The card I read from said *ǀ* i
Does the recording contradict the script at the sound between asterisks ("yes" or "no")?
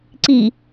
no